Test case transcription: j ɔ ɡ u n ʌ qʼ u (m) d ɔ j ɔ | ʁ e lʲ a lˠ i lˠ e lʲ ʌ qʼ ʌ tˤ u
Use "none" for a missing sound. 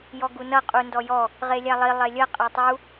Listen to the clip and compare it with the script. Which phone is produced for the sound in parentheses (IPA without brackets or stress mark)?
n